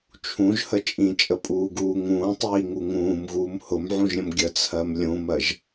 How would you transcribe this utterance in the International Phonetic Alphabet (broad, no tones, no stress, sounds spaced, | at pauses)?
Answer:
t͡ʃʰ ũ ʒ h ə t͡ʃʼ ĩ t͡ʃʼ ə pʼ uː ɡ uː ŋ ũː tˤ iː ŋ u ŋ ũː m ɣ uː m h ʊ m ʕ ũ ʒ ɾʲ ə̃ m ɡʲ ə t͡sʰ ɜ m lʲ ũ m ɜ ʒ